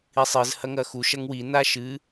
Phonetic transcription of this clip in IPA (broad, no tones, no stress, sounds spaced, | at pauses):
i sˤ ɨ z h ɐ ŋ ɐ x u ʃ ɐ ŋ w i n a ʃ ɨ